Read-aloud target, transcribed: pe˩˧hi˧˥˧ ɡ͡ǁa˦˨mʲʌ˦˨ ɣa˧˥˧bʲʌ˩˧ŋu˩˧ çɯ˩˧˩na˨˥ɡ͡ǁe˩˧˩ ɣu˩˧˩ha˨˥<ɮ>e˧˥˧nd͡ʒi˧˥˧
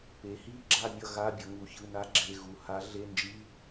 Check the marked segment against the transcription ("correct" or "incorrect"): correct